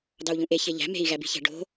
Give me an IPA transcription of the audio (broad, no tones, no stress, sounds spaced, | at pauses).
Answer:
d ɑ u̯ ʎ ũ ʔ e ç e ʎ æ̤ m e̤ i̯ ɣ æ b i̤ ç æ̤ ɖ o̤